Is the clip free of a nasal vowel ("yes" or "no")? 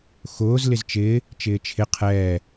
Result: yes